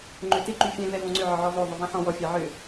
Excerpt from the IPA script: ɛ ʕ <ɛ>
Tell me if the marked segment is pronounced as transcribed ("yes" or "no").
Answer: no